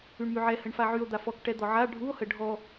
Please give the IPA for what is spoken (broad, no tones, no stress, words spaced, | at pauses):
yɳmyʕɛ həɳfaʕyo̯ d̪afɔk ʈɛd̪ɔʕa ɖʱuo̯hə ɖʱɔ